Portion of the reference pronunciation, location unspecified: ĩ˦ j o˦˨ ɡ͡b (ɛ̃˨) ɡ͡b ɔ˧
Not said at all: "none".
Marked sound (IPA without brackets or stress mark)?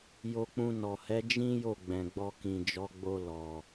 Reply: ɛ̃˨